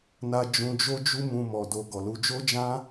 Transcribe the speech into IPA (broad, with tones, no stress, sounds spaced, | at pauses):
n a˧ d͡ʒ ũ˨ d͡ʒ o˧ d͡ʒ u˧ m ũ˧ m ɔ˨ d o˧ ɡ ɔ˨ l u˧ d͡ʒ o˦ d͡ʒ ã˦